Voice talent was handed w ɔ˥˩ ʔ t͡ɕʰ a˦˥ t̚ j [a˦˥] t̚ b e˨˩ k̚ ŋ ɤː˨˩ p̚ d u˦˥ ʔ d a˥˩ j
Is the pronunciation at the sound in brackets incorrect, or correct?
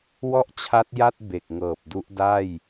incorrect